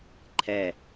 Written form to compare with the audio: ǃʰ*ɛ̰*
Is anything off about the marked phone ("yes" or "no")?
yes